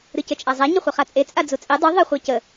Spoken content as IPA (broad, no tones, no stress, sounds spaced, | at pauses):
ɾ ɨ c ə t͡ʃʼ a zˤ a ɲ ə χʷ e χ a t͡sʼ e t͡sʼ a d͡z u t͡sʼ e dˤ u ðˤ ə χʷ a c ə